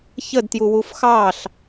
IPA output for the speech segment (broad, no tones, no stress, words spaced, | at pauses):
çədtjuwuf xɑɬ